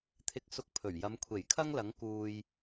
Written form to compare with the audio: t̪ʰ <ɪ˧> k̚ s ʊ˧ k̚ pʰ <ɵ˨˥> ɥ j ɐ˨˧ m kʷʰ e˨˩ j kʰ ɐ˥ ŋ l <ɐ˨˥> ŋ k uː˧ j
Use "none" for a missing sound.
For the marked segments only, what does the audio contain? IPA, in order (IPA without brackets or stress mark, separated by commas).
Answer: ɪ˧, ɵ˨˩, ɐ˨˥